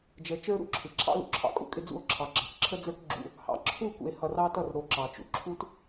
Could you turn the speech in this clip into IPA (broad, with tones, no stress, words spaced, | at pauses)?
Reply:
d͡ʒə˨ t͡ʃə˞˦ɾṵ˦ǁʰɪ˨ǁʰɑ̰˦ lṵ˨ǁʰɑ̰˦kʼṵ˦kʼɪ˦ d͡zṵ˦o̯ǁʰɑ˨ ɡ͡ǁɑ˨kǁʰə˦d͡zə˞˦k ɡ͡ǁṵ˦ | hɑ̰˨ǁʰu˦˨kṵ˨e̯ hʌ˨rɑ˦tʌ˦˨r ɾo˨ ǁɑ˨t͡ʃṵ˨ ǁʰu˦t